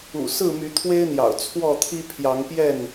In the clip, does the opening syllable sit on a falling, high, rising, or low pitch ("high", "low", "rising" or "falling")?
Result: low